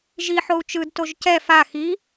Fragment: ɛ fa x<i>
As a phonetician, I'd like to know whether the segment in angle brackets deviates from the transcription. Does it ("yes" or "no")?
no